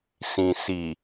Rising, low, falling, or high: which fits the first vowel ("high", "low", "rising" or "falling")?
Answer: low